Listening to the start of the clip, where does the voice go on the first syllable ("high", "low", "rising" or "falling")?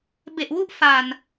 low